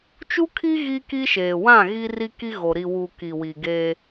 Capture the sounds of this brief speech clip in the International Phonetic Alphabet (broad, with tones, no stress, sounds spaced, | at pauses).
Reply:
t͡ʃ u˦ kʰ i˦ ɣ i˦ k i˦ ʃ eː˨ w ã˦˨ ɣ i˦ r i˦ k i˦ ɣ o˨ ɾ i˨ w u˨ k i˨ w i˨ ɡ eː˦